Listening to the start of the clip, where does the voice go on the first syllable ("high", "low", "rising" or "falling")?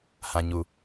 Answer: low